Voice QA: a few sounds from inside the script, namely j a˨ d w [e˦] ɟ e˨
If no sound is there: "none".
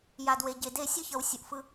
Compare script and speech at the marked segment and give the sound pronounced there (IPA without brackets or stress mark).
e˨